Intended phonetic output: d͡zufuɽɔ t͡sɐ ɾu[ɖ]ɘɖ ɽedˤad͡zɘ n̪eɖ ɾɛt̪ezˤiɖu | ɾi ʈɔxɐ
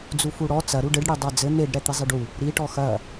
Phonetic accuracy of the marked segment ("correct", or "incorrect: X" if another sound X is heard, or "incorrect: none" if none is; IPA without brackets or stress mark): correct